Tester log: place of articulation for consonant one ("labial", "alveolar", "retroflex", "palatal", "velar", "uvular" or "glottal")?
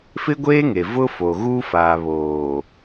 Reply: labial